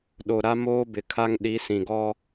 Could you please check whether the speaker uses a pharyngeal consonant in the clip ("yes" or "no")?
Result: no